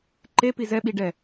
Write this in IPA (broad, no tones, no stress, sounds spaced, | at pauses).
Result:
ǃ e p i z ɛ ɓ i ɖ ɛ